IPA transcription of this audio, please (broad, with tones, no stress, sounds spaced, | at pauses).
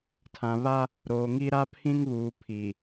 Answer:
tʰ ã˨ β a˦ | ɾ oː˨ ŋ i˦ ɾ a˦ pʰ ĩ˦ ŋ β uː˨ pʰ i˨